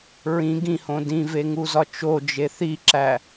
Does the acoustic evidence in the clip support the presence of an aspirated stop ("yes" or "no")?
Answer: no